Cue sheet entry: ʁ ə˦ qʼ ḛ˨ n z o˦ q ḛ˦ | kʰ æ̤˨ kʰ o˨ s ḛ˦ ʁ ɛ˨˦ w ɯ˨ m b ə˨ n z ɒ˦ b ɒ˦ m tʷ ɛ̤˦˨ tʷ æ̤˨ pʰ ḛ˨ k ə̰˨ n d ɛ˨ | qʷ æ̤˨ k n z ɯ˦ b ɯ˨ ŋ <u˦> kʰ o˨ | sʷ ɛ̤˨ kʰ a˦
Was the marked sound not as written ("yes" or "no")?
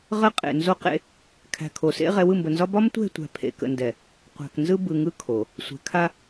yes